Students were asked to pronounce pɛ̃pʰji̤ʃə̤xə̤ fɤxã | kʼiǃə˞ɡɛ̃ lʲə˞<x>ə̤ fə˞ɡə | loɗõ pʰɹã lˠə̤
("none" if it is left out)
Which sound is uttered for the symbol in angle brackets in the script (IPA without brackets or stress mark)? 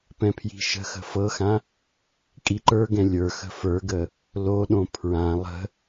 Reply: x